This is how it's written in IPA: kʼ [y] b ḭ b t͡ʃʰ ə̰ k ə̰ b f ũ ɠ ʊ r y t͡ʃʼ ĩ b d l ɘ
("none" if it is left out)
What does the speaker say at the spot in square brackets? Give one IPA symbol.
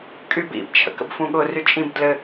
y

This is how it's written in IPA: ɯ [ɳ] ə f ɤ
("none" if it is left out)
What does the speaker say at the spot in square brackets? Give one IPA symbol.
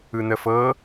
n̪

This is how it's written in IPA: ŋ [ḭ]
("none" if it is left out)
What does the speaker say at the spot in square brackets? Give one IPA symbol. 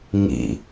ḭ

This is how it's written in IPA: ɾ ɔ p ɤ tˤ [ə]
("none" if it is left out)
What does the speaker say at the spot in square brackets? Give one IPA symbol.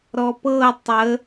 ə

